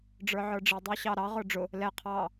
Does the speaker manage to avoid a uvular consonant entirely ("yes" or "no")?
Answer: no